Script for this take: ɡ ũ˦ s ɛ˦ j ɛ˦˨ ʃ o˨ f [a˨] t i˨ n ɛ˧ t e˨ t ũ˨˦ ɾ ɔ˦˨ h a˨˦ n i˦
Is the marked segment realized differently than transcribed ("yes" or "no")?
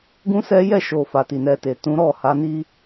no